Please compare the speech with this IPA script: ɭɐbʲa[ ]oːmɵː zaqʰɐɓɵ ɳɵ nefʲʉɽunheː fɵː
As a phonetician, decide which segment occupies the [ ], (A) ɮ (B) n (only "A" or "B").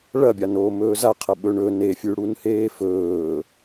B